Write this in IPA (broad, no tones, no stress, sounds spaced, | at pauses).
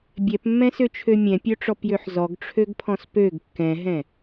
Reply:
bʲ ɛ p mː ɛ̃ s ø t͡ʃʰ ø mʲ ɛ̃ pʲ œ ʈ͡ʂ ɔ p j ø ħ z ɔ ɡ ʈ͡ʂʰ ø ɡ pʰ ɔ̃ s p ø ɡ kː ɛ̃ ɦ ɛ̃